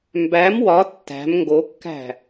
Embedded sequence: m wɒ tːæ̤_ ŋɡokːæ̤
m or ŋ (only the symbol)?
m